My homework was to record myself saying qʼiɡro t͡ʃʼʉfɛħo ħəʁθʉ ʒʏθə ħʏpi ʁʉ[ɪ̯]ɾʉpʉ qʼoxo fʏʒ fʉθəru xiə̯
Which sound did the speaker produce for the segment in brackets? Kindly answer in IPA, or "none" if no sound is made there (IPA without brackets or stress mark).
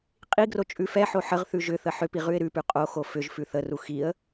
ɪ̯